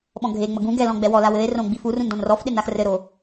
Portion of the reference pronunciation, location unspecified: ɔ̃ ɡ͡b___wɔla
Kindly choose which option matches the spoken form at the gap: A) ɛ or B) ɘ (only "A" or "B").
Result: A